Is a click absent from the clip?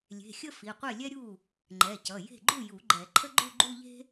no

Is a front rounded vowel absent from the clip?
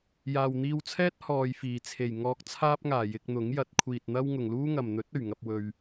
yes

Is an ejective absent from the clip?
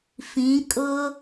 no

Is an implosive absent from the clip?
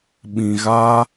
no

